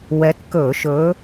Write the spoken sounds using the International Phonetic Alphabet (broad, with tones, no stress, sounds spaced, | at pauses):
w ɛ˨˦ t k ɵ˧˩˧ ʃ ɵ˨˦